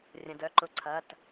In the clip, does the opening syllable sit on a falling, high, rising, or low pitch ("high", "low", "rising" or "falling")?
low